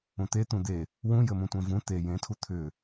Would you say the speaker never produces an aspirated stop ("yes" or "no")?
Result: no